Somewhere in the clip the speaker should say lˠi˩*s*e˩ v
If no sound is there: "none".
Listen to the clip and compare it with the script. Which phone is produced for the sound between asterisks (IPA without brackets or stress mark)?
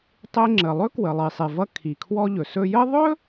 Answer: sˤ